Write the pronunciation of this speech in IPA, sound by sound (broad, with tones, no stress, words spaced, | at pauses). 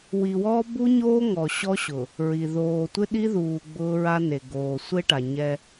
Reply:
wi˨wɔː˦ bu˦ɲoː˦ ŋɔ˨ ɕɔ˦ɕʊ˨ | ɹi˨ ðoː˨tʷɪ˦ɗi˦ðuː˨ ɡ͡bʊː˦ɹa˦ne˨ ɡoː˨sʷe˦ʈa˨ ɲɛ˦